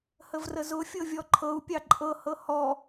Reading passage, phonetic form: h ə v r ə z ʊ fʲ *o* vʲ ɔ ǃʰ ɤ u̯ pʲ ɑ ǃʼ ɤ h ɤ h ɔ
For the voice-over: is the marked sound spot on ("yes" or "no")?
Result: no